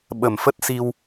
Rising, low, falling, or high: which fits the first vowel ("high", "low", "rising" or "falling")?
low